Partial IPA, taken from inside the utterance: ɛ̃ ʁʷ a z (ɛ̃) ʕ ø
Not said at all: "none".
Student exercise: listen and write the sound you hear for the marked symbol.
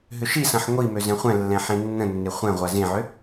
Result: ẽ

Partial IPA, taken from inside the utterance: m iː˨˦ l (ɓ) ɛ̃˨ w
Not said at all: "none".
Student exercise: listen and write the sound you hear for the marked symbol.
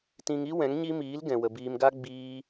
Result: ɡ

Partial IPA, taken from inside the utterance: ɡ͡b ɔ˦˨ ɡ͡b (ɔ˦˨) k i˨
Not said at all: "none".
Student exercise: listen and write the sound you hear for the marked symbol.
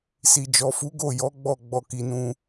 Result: ɔ˧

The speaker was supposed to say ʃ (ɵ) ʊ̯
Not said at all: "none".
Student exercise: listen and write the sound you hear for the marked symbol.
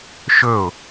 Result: ɵ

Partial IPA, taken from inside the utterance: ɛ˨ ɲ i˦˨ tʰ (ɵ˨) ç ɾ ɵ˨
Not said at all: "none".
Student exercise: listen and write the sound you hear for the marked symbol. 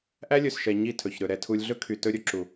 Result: ɵ˨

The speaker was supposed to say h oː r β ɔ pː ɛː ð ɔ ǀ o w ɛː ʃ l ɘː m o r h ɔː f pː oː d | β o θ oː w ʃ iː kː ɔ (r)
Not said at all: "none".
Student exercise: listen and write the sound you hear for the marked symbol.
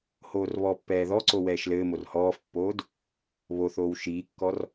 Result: r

